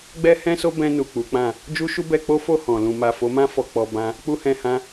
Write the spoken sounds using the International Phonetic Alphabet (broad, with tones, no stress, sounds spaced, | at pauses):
ɡ͡b ɛ˦ h ɛ̃˦ s o˦ b ɛ̃˧ n u˨ k͡p u˨˦ k͡p ã˦˨ | d͡ʒ u˦ ʃ u˦ b ɛ˧ k͡p o˦ f o˦˨ h ɔ̃˨ l ũ˨ m a˨ f o˨˦ m ã˦ f ɔ˧ k͡p ɔ˧ b ã˦ | k͡p u˦ h ɛ̃˧ h ã˦